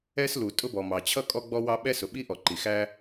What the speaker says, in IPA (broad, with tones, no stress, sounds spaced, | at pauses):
ɛ˥ s l u˩ tʼ ʊ˥ b ɔ˩ m ɑ˩ t͡ɕʰ ʌ˥ kʼ ɔ˥ ɡ͡b ɔ˥ w ɑ˥ ɓ ɛ˥ s ʊ˩ ɓ i˥ ʔ ɔ˩ ǃ i˩ x æ˥